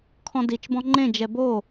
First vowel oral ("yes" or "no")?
no